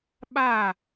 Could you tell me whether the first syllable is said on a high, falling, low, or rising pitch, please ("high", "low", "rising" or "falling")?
falling